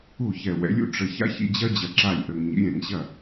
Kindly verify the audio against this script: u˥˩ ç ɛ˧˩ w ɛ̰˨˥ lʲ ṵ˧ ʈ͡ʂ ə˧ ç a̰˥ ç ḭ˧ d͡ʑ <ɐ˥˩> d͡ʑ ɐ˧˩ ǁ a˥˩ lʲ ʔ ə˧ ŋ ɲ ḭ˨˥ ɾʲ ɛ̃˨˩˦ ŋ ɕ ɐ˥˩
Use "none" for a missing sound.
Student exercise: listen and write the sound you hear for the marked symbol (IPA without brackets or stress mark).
ɐ˥